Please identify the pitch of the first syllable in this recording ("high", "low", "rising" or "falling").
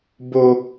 high